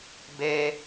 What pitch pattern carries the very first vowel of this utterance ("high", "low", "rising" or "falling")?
high